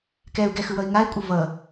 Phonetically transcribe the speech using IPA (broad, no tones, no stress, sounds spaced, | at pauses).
k ɛ u̯ ɡ ɛ x ɯ w ʌ i̯ ŋ a i̯ kʷʼ ɯ v ʌ